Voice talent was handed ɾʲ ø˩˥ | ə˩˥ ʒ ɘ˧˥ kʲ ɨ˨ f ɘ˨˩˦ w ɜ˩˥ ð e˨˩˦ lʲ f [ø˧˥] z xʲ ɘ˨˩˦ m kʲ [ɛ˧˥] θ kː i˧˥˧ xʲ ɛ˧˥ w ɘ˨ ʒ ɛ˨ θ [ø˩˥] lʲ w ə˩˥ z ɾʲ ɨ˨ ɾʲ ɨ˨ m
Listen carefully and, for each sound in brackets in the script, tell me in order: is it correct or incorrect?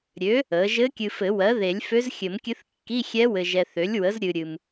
correct, incorrect, correct

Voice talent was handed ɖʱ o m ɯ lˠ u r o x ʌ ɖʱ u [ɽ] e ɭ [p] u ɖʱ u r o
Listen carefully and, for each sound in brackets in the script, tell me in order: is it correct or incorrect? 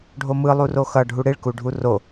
correct, incorrect

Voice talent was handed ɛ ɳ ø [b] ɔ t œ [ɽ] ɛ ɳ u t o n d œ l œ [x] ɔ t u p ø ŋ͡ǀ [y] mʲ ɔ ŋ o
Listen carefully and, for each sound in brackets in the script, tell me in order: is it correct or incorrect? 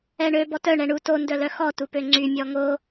correct, incorrect, correct, correct

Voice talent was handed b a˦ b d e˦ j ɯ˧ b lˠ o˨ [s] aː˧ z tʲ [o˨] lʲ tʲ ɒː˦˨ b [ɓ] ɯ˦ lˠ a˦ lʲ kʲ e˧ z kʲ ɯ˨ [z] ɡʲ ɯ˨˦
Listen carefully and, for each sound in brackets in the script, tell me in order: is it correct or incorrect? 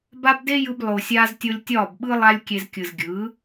incorrect, incorrect, correct, correct

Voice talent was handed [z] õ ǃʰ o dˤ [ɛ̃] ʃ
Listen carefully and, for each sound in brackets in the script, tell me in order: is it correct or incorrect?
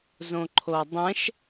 correct, correct

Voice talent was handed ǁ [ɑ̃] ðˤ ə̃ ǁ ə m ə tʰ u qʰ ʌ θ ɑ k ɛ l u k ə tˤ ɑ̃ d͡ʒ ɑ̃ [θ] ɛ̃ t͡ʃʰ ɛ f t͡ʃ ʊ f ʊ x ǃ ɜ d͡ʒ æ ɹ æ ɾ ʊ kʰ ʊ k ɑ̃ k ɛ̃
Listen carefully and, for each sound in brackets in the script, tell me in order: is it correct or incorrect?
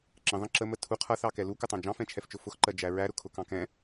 incorrect, incorrect

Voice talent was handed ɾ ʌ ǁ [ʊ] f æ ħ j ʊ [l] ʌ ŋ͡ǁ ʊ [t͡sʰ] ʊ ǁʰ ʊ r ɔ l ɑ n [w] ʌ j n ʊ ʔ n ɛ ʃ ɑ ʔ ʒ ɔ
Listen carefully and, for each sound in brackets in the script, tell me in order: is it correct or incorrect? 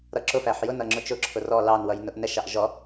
correct, incorrect, incorrect, correct

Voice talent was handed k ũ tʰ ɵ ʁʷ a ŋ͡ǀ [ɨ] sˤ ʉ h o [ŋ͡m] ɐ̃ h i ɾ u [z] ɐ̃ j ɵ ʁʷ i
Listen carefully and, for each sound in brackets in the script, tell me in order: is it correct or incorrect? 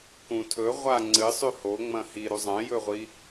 correct, correct, incorrect

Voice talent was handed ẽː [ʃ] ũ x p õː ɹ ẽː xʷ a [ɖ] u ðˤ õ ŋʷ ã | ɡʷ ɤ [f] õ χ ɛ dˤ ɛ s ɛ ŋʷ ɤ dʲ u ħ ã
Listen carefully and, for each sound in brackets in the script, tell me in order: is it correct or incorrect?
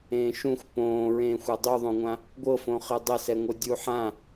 correct, incorrect, correct

